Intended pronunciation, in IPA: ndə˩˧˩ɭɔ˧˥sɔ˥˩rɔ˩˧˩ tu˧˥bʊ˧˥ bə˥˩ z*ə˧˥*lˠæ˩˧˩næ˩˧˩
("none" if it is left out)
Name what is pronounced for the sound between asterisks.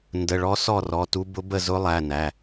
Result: ʊ˧˥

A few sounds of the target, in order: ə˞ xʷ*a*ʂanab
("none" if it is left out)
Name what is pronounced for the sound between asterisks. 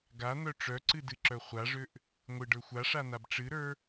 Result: a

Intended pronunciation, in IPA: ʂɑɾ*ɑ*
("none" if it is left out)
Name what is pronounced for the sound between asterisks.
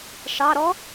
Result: ɔ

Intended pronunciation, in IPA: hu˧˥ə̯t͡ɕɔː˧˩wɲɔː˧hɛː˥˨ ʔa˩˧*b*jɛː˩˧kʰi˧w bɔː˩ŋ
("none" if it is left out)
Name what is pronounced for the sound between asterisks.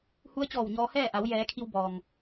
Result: w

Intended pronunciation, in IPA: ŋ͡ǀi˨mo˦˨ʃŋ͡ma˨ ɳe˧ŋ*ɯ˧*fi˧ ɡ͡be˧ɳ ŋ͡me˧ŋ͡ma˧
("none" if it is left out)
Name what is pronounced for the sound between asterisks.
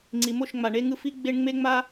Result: ɯ˧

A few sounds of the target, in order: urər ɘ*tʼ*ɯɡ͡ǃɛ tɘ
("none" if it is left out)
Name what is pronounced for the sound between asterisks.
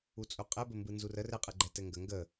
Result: qʼ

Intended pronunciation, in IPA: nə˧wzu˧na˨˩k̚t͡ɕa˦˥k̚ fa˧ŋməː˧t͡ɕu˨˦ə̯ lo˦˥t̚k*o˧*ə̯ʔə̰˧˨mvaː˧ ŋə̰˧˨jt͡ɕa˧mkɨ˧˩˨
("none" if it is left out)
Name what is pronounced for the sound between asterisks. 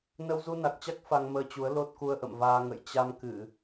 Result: u˧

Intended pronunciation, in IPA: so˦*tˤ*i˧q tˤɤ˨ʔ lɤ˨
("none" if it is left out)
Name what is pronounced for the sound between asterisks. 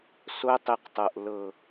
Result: tˤ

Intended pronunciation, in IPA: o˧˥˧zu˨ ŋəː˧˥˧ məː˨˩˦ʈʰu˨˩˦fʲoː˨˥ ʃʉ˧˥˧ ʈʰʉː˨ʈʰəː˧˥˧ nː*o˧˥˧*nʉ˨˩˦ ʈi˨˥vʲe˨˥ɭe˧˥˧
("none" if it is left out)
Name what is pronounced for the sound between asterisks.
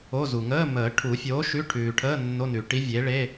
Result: o˧˥˧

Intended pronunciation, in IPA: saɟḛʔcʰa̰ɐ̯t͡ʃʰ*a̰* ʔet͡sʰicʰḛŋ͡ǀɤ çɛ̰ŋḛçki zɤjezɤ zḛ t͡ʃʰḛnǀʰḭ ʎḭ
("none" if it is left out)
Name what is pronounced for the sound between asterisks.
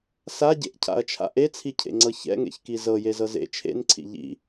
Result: a̰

